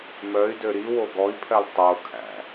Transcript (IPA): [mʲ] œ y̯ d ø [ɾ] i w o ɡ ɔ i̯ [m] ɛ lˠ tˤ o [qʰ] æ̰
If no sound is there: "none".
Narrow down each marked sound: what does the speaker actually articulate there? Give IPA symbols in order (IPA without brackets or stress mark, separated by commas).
m, ɾ, pʰ, kʰ